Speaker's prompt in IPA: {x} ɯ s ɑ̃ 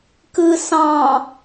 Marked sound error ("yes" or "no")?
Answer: yes